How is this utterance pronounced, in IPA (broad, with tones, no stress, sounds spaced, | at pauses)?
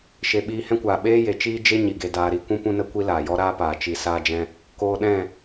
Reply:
ʃ e˨ ɓ iː˧ h ɛ̃˦ kʷ aː˨ ɓ eː˦ j e˨ t͡ʃ iː˦ d͡ʒ e˦ ɲ i˨ ɡ e˧ d aː˧ ɾ i˧ kʷ ũ˦ p ũ˦ n ə˦ kʷ i˦ l aː˨ j ɔ˦ ɾ aː˦ p aː˨ t͡ʃ i˧ s aː˦ d͡ʒ ɛ̃˦ | k oː˧ ɗ ɛ̃˦˨